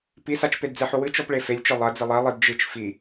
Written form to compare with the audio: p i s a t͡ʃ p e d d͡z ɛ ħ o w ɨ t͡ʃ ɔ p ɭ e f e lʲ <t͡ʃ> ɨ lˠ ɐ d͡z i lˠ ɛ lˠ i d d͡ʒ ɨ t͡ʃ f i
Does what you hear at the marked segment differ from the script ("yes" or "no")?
no